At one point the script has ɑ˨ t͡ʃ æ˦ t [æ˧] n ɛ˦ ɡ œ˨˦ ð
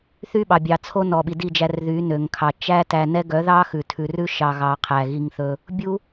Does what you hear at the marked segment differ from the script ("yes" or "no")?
no